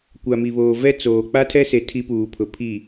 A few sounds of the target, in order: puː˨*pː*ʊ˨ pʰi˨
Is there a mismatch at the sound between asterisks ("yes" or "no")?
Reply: yes